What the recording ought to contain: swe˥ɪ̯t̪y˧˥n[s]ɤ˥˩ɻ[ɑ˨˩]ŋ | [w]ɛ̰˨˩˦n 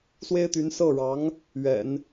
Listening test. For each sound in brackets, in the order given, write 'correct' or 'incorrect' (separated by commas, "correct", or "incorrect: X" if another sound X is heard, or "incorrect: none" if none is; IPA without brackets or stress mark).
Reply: correct, incorrect: ɑ˧˥, incorrect: ɥ